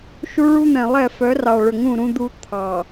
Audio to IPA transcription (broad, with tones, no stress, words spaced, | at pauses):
ʃu˦ɭu˦n̪ɛ̃˨lˠɛ˦˨ fœ˨˦rɑ˨ɭɵ˨ŋũ˦˨ ɾũ˦d̪u˦ t̪ʰɑ˨